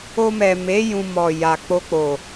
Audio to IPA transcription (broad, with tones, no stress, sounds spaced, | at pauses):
o˧ m ɛ˨ m e˨˦ j ũ˧ m ɔ˨ j a˨ k͡p o˧ k͡p o˨